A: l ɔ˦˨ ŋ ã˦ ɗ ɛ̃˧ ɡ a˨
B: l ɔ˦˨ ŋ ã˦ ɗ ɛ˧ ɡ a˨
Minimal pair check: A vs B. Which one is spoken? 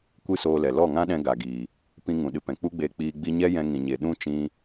A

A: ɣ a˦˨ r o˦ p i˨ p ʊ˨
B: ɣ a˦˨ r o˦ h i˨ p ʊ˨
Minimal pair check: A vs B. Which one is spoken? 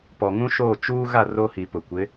B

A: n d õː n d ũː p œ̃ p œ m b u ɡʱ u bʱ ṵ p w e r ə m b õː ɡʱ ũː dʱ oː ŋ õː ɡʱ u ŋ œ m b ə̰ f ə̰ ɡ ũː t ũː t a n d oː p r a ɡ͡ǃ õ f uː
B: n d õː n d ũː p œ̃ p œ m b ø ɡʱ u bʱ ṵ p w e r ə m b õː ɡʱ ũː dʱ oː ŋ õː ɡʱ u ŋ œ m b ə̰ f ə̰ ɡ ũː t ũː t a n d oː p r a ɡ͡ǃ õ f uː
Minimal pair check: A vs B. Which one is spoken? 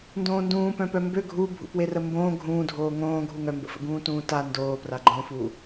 B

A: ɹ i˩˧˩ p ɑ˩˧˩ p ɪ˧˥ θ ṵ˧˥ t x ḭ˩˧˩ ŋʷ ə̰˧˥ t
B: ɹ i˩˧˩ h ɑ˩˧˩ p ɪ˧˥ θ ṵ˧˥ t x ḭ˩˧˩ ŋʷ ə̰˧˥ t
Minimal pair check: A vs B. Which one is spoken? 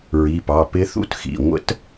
A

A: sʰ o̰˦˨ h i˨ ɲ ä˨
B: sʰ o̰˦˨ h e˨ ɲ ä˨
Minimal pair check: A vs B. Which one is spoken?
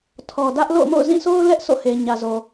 B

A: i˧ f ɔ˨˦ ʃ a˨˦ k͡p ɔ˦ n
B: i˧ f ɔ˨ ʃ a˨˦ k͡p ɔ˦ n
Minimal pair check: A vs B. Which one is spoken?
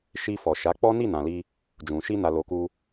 B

